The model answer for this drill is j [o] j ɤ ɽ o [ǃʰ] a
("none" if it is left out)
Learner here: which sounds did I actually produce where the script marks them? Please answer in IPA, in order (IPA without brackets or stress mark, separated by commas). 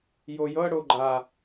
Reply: o, ɡ͡ǃ